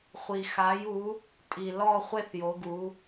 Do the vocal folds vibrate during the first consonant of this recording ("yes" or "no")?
no